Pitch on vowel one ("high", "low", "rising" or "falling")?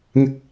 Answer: high